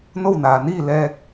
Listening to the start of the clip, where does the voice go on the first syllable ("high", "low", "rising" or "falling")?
falling